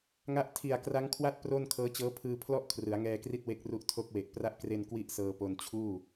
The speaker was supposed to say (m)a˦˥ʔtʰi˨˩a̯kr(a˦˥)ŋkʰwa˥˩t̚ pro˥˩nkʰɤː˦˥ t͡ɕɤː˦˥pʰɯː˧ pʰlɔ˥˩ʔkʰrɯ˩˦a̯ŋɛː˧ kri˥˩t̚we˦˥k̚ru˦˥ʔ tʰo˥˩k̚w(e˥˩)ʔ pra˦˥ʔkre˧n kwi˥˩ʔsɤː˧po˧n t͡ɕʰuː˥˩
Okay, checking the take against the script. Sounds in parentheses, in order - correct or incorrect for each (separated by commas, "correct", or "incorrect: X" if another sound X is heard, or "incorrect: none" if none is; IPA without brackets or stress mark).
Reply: incorrect: ŋ, correct, incorrect: e˨˩